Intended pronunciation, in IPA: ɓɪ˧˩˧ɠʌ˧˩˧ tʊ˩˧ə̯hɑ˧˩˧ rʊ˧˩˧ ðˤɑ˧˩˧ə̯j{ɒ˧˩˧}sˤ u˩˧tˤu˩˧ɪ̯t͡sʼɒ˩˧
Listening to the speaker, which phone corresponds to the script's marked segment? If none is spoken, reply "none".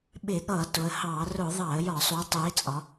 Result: ɒ˧˩˧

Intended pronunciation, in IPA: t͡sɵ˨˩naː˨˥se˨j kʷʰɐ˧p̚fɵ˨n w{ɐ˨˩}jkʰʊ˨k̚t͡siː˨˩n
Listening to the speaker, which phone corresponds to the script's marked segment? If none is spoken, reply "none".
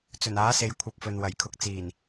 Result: ɐ˨˩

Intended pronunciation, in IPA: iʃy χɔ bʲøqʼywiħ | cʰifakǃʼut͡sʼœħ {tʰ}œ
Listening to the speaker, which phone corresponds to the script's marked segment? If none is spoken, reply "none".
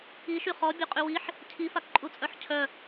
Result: cʰ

